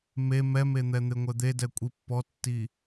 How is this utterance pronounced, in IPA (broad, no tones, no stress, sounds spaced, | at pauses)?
m e m ɛ m e n̪ ɛ n̪ e ŋʷ ɛ d̪ e d ɛ kʷʼ i pː ɔ tː i